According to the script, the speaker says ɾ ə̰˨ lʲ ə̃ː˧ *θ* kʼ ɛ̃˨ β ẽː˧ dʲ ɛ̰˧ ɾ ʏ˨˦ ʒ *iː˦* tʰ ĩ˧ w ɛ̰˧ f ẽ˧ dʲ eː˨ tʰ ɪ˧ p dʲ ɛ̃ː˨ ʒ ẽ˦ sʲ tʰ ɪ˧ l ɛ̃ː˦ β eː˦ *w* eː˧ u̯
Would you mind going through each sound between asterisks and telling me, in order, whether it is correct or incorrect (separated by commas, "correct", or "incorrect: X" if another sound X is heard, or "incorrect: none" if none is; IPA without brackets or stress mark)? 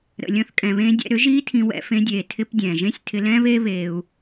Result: correct, correct, incorrect: β